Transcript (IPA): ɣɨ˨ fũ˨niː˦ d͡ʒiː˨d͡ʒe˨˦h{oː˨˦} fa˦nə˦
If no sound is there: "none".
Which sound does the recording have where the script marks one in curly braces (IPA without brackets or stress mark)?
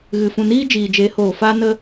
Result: oː˨